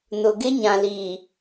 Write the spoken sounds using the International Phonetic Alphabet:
nʊ˨ɡɪ˦ ɲã˨liː˨

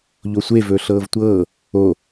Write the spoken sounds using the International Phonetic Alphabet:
ʎosʷe vɵːɬɤːvtʷɤː | o

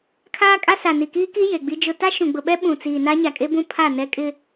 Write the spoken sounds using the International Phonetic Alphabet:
kʰaː˦kʼa˦sa˨ ni˨kiː˦ki˦ je˨ɡ͡bi˦d͡ʒʊ˦ ta˦ʃũ˨ɡ͡bʊ˨ɓɛ˦ ɓũ˨t͡siː˨na˦ ɲa˨kʼe˦bũ˦ pʰa˦˨ nɛ˦kʼɪ˦

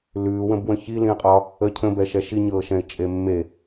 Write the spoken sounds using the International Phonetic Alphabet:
lʉːwə̃bwə̃ çilĩə̯qʼɒ | ə cʰə̃bɛʃɛ ʃiɲɤːʃɛ̃ɪ̯ t͡ʃʼemːe

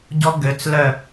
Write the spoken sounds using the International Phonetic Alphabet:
ɟɔ ɡøt͡s lœ

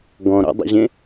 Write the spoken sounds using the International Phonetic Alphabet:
ɡɔ̃ɾɔ̰dˤə̰ʑẽ

